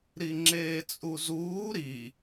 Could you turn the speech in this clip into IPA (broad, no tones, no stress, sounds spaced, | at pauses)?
ɾ i ŋ͡ǁ eː t͡sʼ u z uː ɾ i